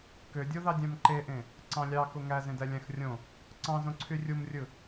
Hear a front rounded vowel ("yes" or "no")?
yes